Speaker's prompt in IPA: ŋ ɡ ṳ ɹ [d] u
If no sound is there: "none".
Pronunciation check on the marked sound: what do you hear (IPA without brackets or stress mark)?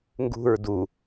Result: d